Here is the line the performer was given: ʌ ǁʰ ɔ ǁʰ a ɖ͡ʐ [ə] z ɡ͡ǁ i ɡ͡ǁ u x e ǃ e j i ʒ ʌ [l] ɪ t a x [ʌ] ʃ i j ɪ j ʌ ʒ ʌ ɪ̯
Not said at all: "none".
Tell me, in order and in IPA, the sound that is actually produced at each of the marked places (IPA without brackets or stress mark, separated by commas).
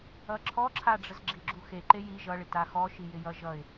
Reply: ə, ɭ, ɔ